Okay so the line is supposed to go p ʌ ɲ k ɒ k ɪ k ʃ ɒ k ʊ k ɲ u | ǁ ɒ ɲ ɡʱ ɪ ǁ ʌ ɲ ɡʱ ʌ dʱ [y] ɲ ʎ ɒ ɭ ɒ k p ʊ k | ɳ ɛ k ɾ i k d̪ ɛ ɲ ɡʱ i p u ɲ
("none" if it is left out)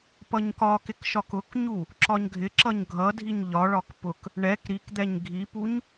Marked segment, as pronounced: i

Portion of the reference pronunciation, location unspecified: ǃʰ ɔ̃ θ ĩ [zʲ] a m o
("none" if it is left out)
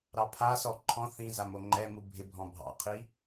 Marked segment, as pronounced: z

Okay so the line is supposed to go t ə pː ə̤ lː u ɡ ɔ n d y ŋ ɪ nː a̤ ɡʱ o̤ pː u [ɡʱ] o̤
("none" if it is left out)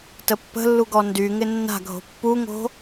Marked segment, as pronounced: ŋ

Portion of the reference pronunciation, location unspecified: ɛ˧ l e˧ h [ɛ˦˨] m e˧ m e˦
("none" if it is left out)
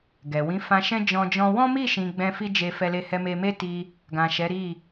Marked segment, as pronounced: ɛ˧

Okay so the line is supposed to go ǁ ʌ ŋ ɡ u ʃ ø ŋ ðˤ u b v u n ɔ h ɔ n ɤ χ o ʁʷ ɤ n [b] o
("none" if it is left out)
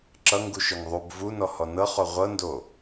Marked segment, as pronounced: d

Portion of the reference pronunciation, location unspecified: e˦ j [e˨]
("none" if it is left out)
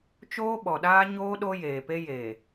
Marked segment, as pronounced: e˨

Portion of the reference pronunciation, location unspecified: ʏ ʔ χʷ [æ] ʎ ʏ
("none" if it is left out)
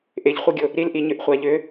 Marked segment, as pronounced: a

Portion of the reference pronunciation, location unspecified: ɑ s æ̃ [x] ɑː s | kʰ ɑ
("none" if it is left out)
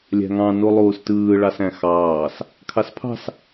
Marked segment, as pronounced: x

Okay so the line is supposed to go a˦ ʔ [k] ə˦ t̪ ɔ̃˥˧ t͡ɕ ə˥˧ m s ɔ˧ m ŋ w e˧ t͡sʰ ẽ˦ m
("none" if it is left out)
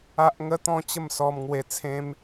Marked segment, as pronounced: ŋ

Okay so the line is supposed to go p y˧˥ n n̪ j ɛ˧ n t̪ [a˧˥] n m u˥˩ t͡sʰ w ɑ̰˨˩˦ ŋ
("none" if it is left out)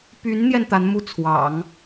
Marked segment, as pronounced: a˧˥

